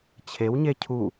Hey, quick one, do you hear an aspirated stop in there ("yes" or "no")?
yes